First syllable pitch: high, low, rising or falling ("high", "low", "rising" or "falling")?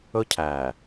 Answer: high